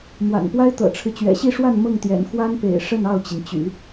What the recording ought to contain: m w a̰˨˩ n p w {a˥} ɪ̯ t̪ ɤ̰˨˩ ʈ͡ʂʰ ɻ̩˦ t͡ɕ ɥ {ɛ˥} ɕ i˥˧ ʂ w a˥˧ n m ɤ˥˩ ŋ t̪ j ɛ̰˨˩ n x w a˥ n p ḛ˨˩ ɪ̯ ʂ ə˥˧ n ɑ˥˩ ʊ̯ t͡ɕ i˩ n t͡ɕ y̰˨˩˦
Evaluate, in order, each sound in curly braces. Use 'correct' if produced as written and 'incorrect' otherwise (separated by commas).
correct, incorrect